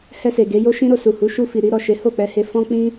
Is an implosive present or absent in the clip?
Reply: absent